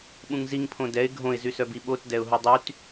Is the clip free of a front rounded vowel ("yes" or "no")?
no